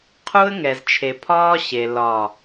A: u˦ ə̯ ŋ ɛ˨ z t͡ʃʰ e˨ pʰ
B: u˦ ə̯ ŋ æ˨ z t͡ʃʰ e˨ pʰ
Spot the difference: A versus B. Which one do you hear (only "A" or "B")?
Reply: A